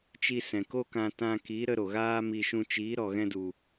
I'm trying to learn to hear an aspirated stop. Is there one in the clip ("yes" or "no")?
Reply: no